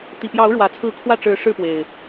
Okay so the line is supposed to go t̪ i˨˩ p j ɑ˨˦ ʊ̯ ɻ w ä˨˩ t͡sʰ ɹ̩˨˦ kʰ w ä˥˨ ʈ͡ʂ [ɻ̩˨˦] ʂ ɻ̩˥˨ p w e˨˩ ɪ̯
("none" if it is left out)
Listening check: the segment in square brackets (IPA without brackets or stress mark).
ɻ̩˨˦